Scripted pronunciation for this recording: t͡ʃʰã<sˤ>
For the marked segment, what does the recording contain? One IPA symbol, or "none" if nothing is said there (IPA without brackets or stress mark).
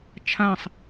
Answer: sˤ